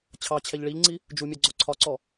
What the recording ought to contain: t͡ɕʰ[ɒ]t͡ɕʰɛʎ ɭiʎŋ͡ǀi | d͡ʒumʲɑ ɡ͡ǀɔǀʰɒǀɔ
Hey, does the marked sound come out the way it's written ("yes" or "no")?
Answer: no